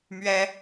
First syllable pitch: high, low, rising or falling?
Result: high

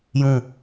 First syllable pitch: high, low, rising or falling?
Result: falling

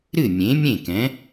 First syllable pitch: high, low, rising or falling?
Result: falling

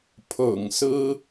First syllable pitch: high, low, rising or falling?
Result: low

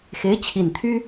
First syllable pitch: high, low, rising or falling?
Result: rising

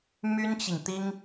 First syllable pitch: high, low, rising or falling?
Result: high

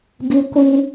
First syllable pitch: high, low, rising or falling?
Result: high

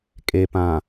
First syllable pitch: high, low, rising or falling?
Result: low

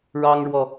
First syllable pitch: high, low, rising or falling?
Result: high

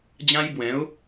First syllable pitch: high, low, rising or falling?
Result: high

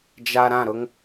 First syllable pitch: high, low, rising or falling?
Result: low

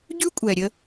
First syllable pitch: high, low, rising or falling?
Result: high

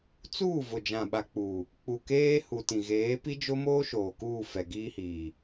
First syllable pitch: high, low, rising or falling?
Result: falling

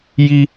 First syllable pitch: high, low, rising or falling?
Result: high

